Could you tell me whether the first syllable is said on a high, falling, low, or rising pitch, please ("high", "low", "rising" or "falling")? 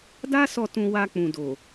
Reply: high